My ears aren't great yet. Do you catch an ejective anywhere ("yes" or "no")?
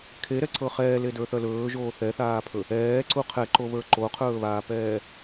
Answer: no